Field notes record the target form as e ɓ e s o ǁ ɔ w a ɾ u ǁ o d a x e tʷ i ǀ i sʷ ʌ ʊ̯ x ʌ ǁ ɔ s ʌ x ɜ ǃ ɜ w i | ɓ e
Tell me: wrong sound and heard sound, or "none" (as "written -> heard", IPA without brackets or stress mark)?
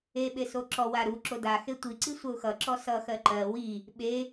none